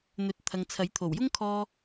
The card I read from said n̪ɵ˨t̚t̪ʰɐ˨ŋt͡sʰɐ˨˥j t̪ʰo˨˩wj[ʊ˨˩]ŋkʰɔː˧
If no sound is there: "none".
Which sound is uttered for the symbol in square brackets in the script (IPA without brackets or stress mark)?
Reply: ʊ˥